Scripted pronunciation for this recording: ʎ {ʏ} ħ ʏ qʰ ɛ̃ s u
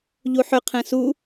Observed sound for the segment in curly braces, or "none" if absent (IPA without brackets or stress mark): u